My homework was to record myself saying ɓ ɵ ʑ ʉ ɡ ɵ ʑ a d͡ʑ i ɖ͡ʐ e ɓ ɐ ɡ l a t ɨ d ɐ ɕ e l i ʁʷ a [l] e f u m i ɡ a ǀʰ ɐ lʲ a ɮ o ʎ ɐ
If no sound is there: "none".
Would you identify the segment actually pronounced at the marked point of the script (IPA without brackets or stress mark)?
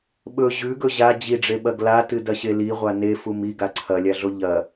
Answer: n